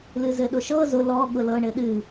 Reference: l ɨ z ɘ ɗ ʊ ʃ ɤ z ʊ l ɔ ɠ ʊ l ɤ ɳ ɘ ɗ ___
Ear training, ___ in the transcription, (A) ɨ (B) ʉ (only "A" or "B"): A